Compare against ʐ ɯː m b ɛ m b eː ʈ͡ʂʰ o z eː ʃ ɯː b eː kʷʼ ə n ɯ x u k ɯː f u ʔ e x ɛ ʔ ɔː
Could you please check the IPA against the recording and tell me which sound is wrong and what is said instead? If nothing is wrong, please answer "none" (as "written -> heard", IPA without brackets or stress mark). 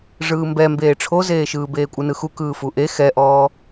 ə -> ɯ